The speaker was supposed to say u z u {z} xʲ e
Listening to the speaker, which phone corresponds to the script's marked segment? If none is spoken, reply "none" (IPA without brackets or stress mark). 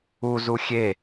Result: none